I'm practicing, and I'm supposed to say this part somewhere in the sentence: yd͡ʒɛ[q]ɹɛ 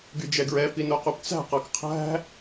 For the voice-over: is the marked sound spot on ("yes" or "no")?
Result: no